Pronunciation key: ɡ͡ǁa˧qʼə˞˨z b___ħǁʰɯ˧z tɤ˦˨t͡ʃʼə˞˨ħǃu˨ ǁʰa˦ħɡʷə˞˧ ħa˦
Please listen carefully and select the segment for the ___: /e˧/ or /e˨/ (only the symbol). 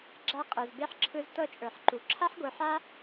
e˧